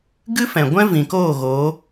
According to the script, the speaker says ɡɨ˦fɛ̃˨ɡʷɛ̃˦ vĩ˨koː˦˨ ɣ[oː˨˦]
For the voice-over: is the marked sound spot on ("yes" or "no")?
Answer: yes